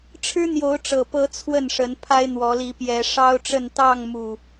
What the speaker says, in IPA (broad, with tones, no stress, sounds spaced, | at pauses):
ʈ͡ʂʰ ɻ̩˦ n̪ j o˨˦ ʊ̯ ʈ͡ʂ ɤ˨˩ p ɤ˨˦ t͡sʰ w ə˥˨ n ʂ ə˨˦ n pʰ a˦ ɪ̯ n̪ w ɔ˨˦ l i˨˦ p j ɛ˨˦ ʂ ɑ˦ ʊ̯ ʈ͡ʂ ə˥˨ n t̪ ɑ˥˨ ŋ m u˨˩